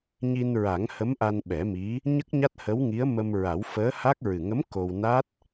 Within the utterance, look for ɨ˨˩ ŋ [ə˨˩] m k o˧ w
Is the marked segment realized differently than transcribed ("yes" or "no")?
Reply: yes